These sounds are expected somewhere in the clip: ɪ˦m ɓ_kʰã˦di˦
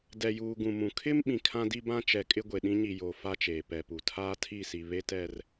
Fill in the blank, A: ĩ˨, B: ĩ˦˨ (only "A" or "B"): A